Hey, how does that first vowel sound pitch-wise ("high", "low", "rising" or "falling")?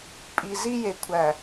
low